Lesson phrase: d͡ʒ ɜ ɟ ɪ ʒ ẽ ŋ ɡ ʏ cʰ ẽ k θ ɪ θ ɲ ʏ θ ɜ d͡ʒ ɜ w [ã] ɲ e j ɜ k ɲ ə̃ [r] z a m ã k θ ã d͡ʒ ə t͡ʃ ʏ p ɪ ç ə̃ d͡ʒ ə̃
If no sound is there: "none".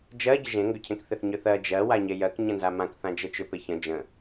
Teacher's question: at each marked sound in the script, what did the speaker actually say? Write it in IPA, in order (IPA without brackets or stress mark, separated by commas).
a, n